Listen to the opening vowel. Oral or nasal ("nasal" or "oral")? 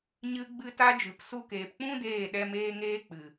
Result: oral